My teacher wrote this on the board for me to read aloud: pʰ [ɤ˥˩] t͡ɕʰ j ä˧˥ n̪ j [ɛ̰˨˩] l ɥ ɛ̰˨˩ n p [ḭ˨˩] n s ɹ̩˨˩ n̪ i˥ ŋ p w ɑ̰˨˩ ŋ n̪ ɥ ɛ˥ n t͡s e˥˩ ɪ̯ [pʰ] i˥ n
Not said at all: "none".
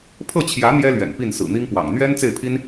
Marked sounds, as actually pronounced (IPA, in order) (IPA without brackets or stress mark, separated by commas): ɤ˥˩, ɛ˥, i˥˩, pʰ